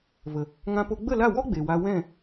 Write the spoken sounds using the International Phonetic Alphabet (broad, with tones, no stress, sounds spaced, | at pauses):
v ə˨ | ŋ ã˧ p o˧ ɡ͡b ə˦˨ l a˦˨ w ɔ˦ ɡ͡b e˨ w a˧ w ɛ̃˦˨